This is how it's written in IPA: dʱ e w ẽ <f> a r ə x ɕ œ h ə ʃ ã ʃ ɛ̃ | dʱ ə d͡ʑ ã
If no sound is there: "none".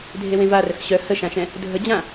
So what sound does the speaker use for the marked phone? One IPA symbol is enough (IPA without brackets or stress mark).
v